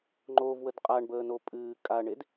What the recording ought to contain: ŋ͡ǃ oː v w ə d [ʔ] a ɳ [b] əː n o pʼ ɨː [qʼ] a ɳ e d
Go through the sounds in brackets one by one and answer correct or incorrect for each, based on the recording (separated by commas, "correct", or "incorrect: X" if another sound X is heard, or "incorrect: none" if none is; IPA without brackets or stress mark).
incorrect: qʼ, correct, incorrect: kʼ